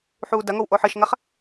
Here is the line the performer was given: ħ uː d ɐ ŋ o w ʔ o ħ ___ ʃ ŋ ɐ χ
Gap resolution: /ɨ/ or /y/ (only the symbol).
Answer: ɨ